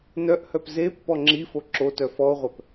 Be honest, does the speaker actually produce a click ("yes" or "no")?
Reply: yes